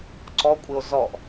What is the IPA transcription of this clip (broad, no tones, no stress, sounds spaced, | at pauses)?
ǀ ɔ kʷʼ ɪ o̯ z ɔ ʔ